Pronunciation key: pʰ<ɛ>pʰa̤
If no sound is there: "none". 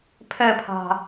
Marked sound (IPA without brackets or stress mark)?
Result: ɛ